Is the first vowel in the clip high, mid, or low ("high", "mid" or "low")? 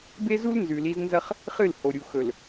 mid